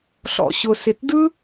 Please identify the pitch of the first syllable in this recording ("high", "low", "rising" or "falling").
low